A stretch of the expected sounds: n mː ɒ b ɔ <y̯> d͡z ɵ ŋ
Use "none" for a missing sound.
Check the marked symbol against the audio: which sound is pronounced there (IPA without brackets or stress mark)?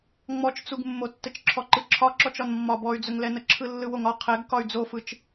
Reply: y̯